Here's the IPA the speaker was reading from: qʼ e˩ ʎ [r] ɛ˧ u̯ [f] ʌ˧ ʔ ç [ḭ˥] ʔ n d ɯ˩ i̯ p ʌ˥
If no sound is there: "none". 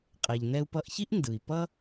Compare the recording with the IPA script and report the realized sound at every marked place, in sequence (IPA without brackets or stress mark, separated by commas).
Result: n, p, i˥